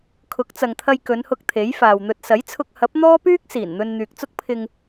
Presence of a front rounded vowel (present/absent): present